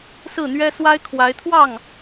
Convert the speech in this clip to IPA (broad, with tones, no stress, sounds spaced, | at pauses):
s ɹ̩˥˩ n̪ ɥ ɛ˥ s w a˥ ɪ̯ kʰ w a˧˥ ɪ̯ t̪ʰ w ɑ˥˩ ŋ